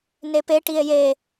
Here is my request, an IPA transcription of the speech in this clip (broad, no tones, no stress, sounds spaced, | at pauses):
n e p e ʈ i e̯ j e